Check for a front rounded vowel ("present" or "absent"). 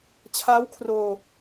absent